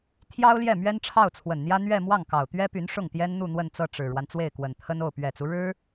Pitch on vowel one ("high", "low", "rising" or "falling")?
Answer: high